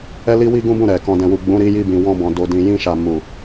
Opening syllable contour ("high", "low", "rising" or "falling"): high